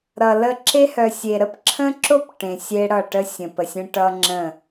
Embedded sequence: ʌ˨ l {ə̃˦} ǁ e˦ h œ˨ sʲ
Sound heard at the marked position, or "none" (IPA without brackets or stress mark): ə˦